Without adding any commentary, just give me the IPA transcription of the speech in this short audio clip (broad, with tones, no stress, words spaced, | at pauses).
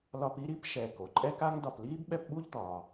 lɒ˦pi˥ɾi˥p ʃɛ˨ ko˩ǃʼɛ˥ka˥ŋ dɒ˨pliː˥bɓɛ˦pɓu˥ʎ d̪ɒː˨